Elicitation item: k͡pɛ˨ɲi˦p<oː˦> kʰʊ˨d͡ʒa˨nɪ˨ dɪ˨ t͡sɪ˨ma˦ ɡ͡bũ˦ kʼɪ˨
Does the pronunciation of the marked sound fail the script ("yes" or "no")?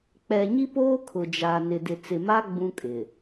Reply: no